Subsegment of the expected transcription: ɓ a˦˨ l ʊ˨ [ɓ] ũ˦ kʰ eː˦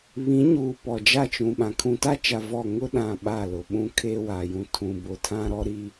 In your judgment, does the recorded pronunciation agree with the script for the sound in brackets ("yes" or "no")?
yes